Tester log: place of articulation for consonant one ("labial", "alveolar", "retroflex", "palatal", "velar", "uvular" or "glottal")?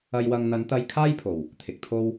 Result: palatal